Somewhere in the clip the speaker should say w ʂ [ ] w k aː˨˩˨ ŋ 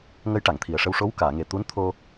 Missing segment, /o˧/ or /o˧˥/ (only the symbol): o˧˥